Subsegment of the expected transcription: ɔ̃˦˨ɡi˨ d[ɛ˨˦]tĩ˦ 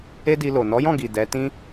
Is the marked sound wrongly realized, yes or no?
no